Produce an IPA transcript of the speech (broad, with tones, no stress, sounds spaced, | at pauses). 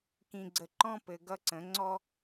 k ĩ˨ ɡ͡ǀ ə˨ ǃ ɔ̃˦ p ɘ˨ ɡ ʌ˦ ǀ ə̃˨˩˦ ŋ͡ǀ ɔ˦